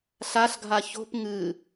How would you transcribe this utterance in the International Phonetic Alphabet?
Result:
ɬ a ɬ ɡʱ a ç o̤ p ŋ ɨ

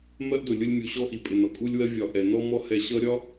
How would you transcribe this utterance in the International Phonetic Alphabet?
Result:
m ɜ˦ ʔ d ʊ˨ lʲ ʊ˦ lʲ mʲ u˨ ɕ ɔ˦ ʔ i˨ pʼ ɪ˨ n ɒ˨ kʼ u˦ lʲ w ɜ˦ vʲ ɒ˨ ʔ ɛ˨ n ɔ˦ m ɔ˦ h ɛ˨ ɕ ʌ˦ ɾʲ ɒ˦

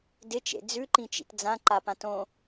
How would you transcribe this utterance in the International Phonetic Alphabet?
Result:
d ɪ t͡ʃ ḛ d͡z ʉ ǃ ĩ t͡ʃ ḭ t d͡z ã ǃ a p ã t õ

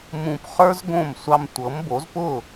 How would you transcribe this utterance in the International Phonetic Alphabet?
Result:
m ũ˧ p χ ə˞˥ z ɡ õ˥˩ m sʷ ɑ˧ m tʷ ɤ˩˥ m b o˩˥ z p ʊ˥˩

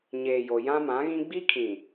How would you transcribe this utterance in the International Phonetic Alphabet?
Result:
ɲ eː˨ j o˨ j ã˦ m ã˨˦ ɣ ĩ˦ ɡ͡b i˦ kʰ ĩ˨

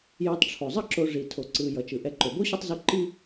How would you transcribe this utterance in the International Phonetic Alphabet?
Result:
j u˨ tˤ ʈ͡ʂʰ o˩ zˤ ʌ˦ ǁ o˨ ʐ i˩ tʰ o˩ ǀ ɯ˩ j ʌ˩ t͡ʃ ɯ˩ ʔ ɛ˨ ǃ o˩ b o˥ ɕ ɯ˦ tˤ z u˦ ǃ i˥

